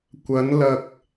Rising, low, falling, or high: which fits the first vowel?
rising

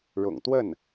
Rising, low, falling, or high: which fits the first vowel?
low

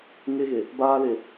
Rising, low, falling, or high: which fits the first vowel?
high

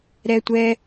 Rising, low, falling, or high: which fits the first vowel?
high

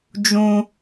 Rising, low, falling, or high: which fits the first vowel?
high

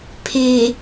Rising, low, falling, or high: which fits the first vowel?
low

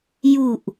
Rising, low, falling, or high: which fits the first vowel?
low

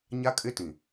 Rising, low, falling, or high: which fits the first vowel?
high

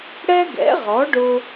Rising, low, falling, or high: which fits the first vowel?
high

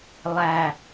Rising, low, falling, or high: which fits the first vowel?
low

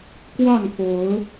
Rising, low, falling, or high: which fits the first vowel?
falling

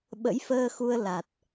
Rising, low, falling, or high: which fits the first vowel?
rising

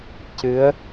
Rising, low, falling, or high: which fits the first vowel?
rising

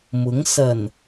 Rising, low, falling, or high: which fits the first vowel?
rising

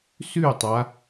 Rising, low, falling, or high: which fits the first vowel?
falling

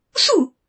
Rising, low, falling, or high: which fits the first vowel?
falling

